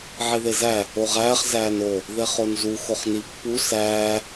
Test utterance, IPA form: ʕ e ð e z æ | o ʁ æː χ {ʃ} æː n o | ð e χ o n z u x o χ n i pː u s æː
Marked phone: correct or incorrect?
incorrect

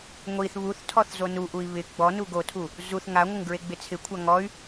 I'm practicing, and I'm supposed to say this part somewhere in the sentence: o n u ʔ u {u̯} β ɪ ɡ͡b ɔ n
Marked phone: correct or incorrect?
incorrect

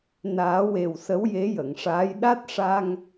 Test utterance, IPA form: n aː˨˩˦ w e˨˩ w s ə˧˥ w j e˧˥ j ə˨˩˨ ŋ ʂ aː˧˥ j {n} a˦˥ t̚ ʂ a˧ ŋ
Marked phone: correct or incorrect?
incorrect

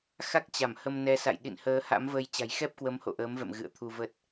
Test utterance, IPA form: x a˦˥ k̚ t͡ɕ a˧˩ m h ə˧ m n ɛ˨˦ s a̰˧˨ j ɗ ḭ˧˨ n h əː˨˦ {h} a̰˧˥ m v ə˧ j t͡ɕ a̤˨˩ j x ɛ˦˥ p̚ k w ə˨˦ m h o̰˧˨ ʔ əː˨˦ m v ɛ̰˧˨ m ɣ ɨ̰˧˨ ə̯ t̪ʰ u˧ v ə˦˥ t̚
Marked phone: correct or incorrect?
correct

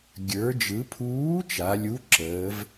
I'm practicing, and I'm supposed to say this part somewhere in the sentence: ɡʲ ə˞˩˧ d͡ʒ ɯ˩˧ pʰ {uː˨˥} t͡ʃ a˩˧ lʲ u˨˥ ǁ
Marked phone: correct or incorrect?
correct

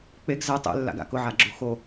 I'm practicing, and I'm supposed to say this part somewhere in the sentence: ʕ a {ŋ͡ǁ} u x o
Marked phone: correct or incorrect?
incorrect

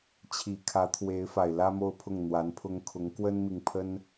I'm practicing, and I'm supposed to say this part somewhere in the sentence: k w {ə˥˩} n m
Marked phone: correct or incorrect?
incorrect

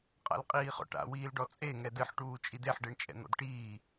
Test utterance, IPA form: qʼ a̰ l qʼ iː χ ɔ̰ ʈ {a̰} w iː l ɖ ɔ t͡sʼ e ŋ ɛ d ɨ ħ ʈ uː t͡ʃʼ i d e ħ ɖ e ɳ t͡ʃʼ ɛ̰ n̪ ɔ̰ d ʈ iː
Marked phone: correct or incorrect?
correct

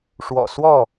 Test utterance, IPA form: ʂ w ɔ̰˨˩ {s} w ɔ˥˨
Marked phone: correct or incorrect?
correct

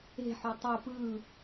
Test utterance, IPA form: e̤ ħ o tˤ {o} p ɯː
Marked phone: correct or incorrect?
correct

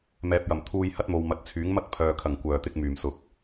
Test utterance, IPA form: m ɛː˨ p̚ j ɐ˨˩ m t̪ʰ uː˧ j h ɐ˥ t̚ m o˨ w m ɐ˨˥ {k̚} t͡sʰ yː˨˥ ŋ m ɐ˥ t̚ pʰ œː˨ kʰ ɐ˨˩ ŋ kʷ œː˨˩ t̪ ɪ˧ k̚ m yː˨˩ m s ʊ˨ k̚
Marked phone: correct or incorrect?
incorrect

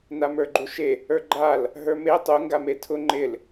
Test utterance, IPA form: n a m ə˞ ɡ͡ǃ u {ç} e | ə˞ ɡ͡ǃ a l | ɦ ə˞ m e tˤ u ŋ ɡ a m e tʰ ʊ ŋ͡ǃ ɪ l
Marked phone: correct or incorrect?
incorrect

